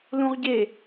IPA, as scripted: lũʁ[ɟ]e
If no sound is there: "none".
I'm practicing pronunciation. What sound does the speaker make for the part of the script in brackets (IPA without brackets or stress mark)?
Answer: ɟ